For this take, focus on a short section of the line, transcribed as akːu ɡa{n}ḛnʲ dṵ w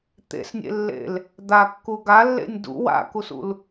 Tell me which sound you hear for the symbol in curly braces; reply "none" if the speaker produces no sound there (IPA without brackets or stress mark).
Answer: lː